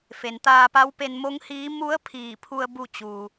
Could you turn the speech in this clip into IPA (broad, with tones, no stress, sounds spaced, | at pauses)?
f e˩ n t̪ aː˧ p a˧˥ w p e˧ n m o˧˥ ŋ h iː˧˥ m u˧˥ ə̯ pʰ iː˧˩ pʰ u˧ ə̯ b u˥˨ t͡ɕ uː˩